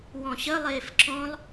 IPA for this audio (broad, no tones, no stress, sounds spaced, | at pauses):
w ɔ̃ ɕ ə lˠ eː f ǁ ɔ̃ lˠ